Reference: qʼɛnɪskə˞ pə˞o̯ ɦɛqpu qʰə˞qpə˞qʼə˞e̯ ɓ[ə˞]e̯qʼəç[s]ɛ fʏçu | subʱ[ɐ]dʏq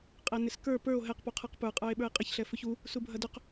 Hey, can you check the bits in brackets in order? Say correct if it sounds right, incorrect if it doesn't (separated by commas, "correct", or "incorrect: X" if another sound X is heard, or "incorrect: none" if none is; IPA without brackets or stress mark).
correct, incorrect: ɬ, correct